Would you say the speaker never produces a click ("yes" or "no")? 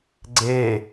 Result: no